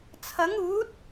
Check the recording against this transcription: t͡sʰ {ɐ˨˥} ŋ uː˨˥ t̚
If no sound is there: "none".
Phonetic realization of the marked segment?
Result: ɐ˨˥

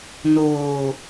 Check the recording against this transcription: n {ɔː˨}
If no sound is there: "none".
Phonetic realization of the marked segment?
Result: oː˨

